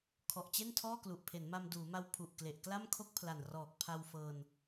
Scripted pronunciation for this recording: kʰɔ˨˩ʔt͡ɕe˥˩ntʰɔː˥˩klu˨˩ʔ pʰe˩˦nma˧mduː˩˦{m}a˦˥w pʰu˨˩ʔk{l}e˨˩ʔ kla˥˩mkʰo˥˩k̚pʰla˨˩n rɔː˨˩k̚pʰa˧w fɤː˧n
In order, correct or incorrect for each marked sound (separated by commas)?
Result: correct, correct